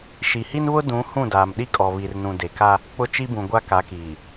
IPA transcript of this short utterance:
ʃi˨hi˦nβʊ˦ dũ˨˦ hũ˦˨daː˨mɗi˦ kʼɔ˨βi˨rnũ˨ de˨ka˦ | k͡pʊ˦t͡ʃi˦bũ˨ ɡʷa˦ka˨˦kiː˨

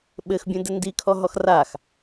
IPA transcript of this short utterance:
ɓɘxbʲõ dɘndikʰɔ ɦɔxrax

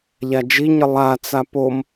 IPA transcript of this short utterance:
ʎad͡ʒiɲə lˠat͡sa pom

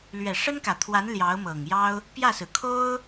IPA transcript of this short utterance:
lɥɛ˨˩ʂə˥nkä˨˩t̪ʰwa˧˥n ljɑ˧˥ʊ̯mɤ˨˩ŋjɑ˥ʊ̯ | pjä˥˩sɹ̩˩ kʰo˥ʊ̯

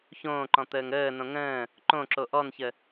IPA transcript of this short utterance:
çõːǃɔ̃ t̪əːŋəːnõ ŋə̃ː | ǃõǁo ʔɔnçə

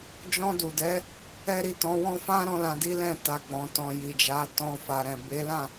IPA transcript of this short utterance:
d͡ʒɔ̃˧du˨dɛ˨˦ | ɛ˦ɾi˦˨tɔ̃˨˦wɔ̃˦ fã˦ɾɔ̃˧ lã˧di˦ lɛ̃˦˨ta˨ ɡ͡bɔ̃˨ tɔ̃˨ ji˨d͡ʒa˨˦ tɔ̃˧fa˨ɾɛ̃˨ be˨˦lã˦˨

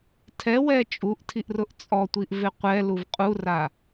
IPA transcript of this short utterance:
tʰɛwɛ t͡ʃʼuʔtʰiʔrʊʔ t͡sʼɔtʷiʔvɪ qʷɛluv qʼura

